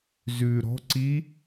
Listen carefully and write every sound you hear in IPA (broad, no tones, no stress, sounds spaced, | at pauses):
z ʉ ɾ ɔ̤ ǀ i